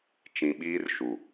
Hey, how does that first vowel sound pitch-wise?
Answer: low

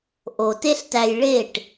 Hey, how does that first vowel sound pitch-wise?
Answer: low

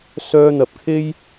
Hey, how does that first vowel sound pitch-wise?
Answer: high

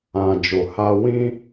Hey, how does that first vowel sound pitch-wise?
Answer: low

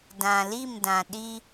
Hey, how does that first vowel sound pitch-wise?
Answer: low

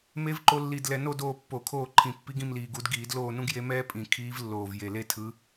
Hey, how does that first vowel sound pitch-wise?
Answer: rising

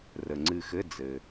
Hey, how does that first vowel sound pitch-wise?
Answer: low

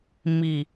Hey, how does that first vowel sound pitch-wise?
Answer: low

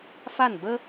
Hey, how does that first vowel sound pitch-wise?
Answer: falling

